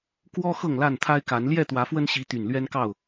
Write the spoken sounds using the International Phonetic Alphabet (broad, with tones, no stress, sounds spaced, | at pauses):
k w ɔ˦ x ɤ˥˨ ŋ l a˥˨ n t̪ʰ a˦ ɪ̯ k a˨˦ n l j ɛ˥˨ t̪ w ä˨˦ f w ə˦ n ɕ i˨˦ t̪ y˨˩ n l ɥ ɛ˦ n k ɑ˥˨ ʊ̯